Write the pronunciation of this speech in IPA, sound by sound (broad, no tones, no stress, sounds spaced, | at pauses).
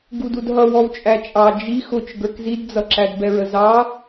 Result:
ɡ u d u d ɦ ʌ w ɔ w t͡ʃʼ æ t͡ʃʼ ɑ d͡ʒ i x ʊ t͡ʃ ɡ ə˞ k z i d d͡z ʌ ǁ æ d b ɛ ɹ ə z ɑ